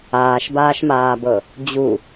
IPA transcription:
aː ʃ b aː ʃ m aː b ɤ | d͡ʑ u

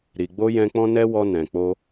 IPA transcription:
ɾ i˨ ɡ͡b o˧ j ɛ̃˧ k͡p ɔ̃˦ n ɛ˦ w ɔ˧ n ɛ̃˨ k͡p o˧

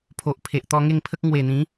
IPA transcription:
pʰ o˨ ʔ pʰ e˨ ʔ t̪ ɔ˧ ŋ e˥˧ ŋ pʰ ə˦ k̚ ŋ w e˨˩ n̪ ĩ˨˦

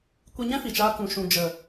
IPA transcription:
kʷ i˧ ɲ ɛ̃˦ f i˨ t͡ʃ aː˧ k ũ˨ ʃ ũ˨ d͡ʒ ə˨

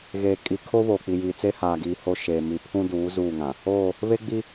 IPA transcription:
ɣ eː˨ kʼ i˨ kʰ o˦ β oː˨ k͡p i˨ j iː˨ t͡s e˦ h aː˨ ɡ iː˨ h o˦ ʃ eː˨ m i˨ pʰ ũ˦ d uː˨˦ z uː˦˨ ŋ ã˨ | oː˦˨ | β e˦ ɡ͡b i˦

